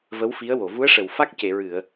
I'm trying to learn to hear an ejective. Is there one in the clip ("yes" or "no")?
no